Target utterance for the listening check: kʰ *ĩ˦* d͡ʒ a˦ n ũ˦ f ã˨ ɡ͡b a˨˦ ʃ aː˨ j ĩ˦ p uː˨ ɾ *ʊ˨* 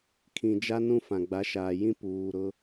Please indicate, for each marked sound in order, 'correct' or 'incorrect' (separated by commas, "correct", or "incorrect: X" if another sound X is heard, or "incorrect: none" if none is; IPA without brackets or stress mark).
incorrect: ĩ˨, incorrect: ʊ˦